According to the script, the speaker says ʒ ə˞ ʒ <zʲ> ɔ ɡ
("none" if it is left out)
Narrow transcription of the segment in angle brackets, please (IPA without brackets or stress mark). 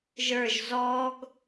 z